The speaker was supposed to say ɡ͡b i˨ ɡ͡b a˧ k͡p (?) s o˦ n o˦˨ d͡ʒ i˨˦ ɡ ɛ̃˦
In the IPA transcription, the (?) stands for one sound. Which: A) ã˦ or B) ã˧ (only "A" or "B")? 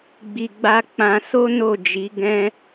B